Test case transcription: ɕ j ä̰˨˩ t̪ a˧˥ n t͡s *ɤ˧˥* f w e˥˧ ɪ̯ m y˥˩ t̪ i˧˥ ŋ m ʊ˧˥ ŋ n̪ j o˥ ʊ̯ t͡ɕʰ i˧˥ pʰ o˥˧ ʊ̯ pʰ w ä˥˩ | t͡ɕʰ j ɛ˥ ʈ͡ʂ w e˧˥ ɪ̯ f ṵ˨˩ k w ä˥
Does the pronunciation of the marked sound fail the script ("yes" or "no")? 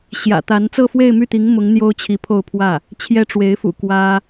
yes